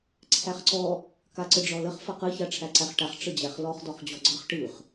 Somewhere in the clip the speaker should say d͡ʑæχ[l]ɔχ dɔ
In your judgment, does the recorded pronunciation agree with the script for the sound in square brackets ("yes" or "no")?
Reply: yes